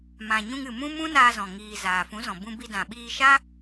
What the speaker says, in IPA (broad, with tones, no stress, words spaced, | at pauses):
mã˨ɲũ˧ŋɨ˨ mũ˦mũ˦naː˧zɔ̃˨ ŋiː˨ zaː˨fũ˨˦zɔ̃˨ bũ˧bi˧ dã˨ɓiː˧ʃa˦